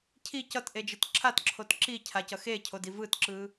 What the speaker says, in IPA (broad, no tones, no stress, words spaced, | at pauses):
cʰi cʌtʔed͡ʒɯt ǁʰatǁʰot ǁicʰacʌ xecʰodi vɯtǁɯ